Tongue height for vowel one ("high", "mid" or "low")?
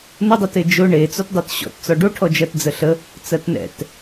mid